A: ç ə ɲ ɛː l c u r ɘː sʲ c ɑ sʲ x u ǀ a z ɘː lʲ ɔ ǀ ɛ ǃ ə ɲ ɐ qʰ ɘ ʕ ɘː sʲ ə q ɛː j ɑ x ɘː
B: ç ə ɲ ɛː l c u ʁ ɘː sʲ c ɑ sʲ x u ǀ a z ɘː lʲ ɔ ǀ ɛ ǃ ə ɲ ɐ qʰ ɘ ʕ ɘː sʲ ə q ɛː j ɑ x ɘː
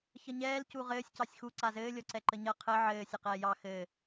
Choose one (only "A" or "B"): B